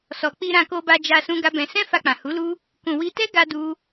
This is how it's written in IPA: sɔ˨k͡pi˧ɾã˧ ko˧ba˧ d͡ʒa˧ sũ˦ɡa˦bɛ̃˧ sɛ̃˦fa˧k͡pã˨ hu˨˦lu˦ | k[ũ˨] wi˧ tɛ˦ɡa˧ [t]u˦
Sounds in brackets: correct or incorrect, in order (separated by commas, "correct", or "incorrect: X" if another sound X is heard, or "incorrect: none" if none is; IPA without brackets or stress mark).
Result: correct, incorrect: d